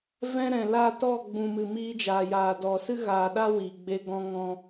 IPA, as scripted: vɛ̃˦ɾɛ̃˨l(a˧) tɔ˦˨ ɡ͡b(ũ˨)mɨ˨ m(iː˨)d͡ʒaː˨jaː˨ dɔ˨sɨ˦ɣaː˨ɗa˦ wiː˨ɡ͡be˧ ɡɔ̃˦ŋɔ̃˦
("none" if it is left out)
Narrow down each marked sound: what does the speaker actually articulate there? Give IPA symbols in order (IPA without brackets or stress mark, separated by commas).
a˦˨, ũ˨, iː˧